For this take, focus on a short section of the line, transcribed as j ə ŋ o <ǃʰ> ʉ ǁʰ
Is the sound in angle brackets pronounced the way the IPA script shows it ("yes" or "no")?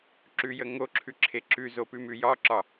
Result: no